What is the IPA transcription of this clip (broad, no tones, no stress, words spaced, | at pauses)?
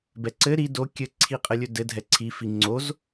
bɛǀɘ ɾi do kʲɘ ǀʰiqʼɘlʲɵdɘ dʱɛǀʰi fiŋ͡ǀoz